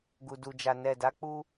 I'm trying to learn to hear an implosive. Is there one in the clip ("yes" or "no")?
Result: no